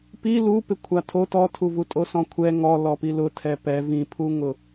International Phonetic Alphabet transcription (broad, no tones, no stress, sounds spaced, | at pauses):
p i l u p ɪ kʷʰ a tʰ o t ɔ tʰ u v u tʼ o s ɔ̃ kʷʰ ɛ ŋ ɔ l ɔ p i l ʊ tʰ ɛ p ɛ v ĩ pʰ u ŋ ʊ